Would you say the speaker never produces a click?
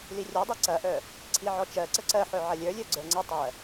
no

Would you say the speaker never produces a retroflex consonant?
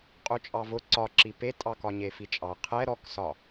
yes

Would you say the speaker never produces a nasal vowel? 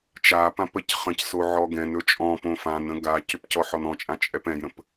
no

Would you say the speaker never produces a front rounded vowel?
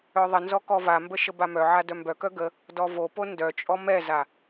no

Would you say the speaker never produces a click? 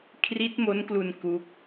yes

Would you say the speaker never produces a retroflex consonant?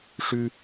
no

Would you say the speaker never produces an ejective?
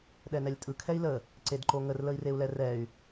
no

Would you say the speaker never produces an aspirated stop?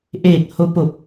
yes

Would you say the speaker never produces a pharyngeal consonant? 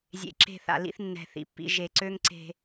yes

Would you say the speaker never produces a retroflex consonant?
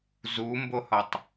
yes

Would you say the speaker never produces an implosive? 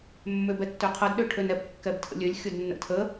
no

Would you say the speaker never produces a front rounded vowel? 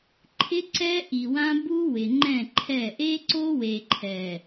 yes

